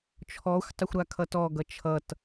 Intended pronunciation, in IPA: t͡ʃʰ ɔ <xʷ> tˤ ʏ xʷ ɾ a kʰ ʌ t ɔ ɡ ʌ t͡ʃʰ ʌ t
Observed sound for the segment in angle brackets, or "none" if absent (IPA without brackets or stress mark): xʷ